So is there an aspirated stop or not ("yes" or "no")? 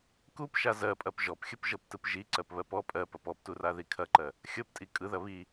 yes